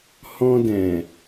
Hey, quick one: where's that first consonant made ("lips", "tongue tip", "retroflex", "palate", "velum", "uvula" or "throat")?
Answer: throat